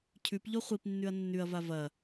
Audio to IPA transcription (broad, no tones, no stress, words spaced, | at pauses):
cʰʉpʎo χʷipnːʉɐ̯ nːʉɐ̯va vɐ